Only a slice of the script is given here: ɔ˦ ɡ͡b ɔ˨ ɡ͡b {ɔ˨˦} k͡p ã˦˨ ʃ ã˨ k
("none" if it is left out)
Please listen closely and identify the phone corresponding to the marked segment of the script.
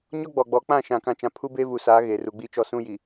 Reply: ɔ˨˦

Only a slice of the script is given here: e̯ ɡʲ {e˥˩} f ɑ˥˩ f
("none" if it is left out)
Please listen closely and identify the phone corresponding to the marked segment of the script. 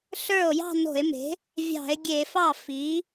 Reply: e˧˩˧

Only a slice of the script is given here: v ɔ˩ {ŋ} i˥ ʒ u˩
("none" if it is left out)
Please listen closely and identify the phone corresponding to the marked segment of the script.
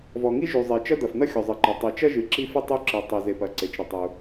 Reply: ŋ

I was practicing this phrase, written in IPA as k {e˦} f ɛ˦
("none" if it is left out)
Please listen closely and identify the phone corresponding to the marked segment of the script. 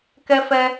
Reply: ɛ˦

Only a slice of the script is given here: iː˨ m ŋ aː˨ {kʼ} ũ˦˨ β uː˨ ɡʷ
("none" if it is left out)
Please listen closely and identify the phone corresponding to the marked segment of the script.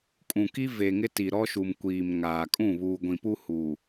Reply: kʼ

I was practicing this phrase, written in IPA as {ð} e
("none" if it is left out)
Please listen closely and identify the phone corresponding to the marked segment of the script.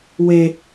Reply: w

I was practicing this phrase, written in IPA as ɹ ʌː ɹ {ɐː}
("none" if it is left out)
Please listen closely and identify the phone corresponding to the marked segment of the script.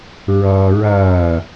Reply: ɐː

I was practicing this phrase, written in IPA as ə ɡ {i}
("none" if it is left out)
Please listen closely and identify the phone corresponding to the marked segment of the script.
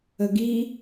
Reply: i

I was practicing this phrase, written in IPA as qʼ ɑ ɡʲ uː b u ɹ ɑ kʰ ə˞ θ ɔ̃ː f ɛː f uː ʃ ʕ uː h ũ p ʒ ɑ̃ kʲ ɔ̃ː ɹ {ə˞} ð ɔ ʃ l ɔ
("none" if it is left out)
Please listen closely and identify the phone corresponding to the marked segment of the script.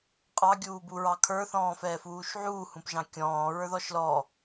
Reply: ə˞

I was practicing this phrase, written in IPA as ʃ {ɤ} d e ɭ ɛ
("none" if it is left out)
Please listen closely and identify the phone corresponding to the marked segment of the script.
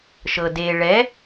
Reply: ɤ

